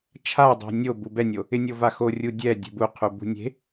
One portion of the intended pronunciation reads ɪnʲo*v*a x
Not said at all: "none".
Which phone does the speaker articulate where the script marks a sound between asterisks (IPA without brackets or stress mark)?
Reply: v